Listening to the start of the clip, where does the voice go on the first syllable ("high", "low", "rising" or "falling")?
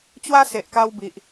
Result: high